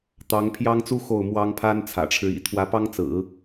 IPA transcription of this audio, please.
t̪ ɑ˧˥ ŋ pʰ j ɑ˥ ŋ t͡s u˥ x o˥˩ ʊ̯ m w ɑ˥ ŋ pʰ a˥ n t͡sʰ ä̰˨˩ ʈ͡ʂʰ ɻ̩˦ ḭ˨˩ t̪ʰ w ä˧˥ p ɑ˥ ŋ t͡s ɹ̩˨˩˦

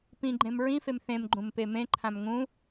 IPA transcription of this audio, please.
p ĩ ɡ͡ǃ ẽ m ɹ ĩ f e m θ ẽ m ɡ͡ǃ ũ m p e m ẽ ǃʰ ã m ŋ ũ

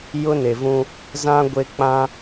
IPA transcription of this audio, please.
j ʊ˦ n e˨ v ũ˦ | z ã˦ ɡʷ e˦ k͡p ã˦

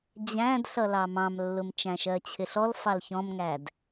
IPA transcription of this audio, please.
d͡ʑ æ̃ d ɬ ʌ l ɑ m ɑ̃ m lː ʊ m t͡ʃ æ̃ ʃ ɜ t͡ɕʰ ɪ ɬ ɔ l f ɑ l ç ɔ̃ m ŋ æ d

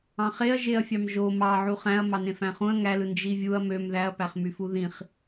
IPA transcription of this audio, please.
ɑ̃ χ e ɐ̯ ʒ e ɐ̯ fʲ ɑ m ʒ o m ɑ ʕ u χ æ̃ ɐ̯ m ɑ n ẽ f æ̃ χ ũ ɐ̯ ŋ æ l ɯ n d͡ʒ i vʲ u ɐ̯ m ø m ð æ ɐ̯ p æ χ m y f u ð ĩ χ

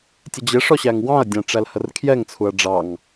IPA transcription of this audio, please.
tʲ ə d͡ʑ ɪ ʂ ɔ ɕ æ ŋ w ɑ̃ ɐ̯ dʲ æ̃ ʈ͡ʂ æ l h ə r kʰ j ɛ ŋ t͡sʰ u ɐ̯ ɖ͡ʐ ɑ ŋ

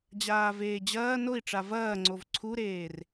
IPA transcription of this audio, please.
d͡ʑ aː v eː d͡ʑ ɐː n o i̯ ʈ͡ʂ a v ɐː ŋ͡ǀ o v ǀʰ u ɾ eː r

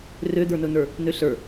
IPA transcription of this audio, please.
r ø d̪ ə˞ n ɵ n ə˞ | n ø ɬ ə˞

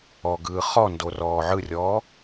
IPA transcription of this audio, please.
ɔ ɡ ɯː χ ɔ n d o r ɔː ʕ ɯ rʲ ɔː

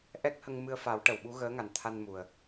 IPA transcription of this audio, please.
ʔ ɛ˦˥ k̚ h ə˧ ŋ m ɨ˧ ə̯ f a˨˩˦ w ʈ ə˨˩˨ w ɓ u˧˥ ɣ əː˧˥ ŋ a˨˩ n t̪ʰ a˧ n m u˨˩ ə̯

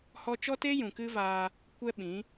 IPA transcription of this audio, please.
h ɔ˧ t͡ʃ ɔ˦ t e˦ j ũ˨ k ɨ˦ v aː˧ | kʷ ɛ˦ ɓ ĩ˨˦

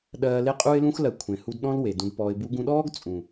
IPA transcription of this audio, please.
ɗ ɜː˧ l e˦ qʼ u˦ ɪ̯ l ũ˦ x l ɜ˨ kʷʰ ẽ˨ h u˧ d ɗ ɔ̃˦ l w e˨ d ũ˧ d p ɔː˨ ɪ̯ b u˧ ɡ ũ˧ ɗ ɔː˦ ɡ t͡sʼ ũ˨

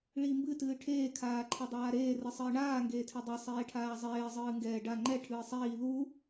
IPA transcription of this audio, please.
ɭ iː m b ɨ t ɨː ʈʰ eː kʰ aː ǃʰ ɛ dˤ aː ɾ eː r ɨ sˤ ɨː ɳ aː ŋ ɡ eː tʰ e dˤ e sˤ eː ʈʰ aː zˤ eː zˤ ɨː ŋ ɡ ɛː ɖ a ŋ͡ǃ ɛ ʈʰ ɨː sˤ iː ð u

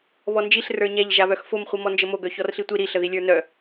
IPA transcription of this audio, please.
β ɔ n d͡ʒ i ɬ r ə˞ ɲ æ ʎ ʒ a β œ x f o m χʷ i m ɔ n d͡ʒ ə m o ɡ œ ç ɔ r ɬ i tʷ i ɾ i ɬ ə ð i lʲ ə˞ n œ

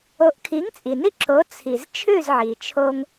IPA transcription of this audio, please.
o˩˥ ʔ kʰ i˩˥ ŋ t͡sʼ i˩ n i˧ ǁ o˩˥ t͡sʰ i˩ z t͡ʃʰ ʉ˥˩ z ʕ i˩ t͡ʃʰ o˧ ŋ

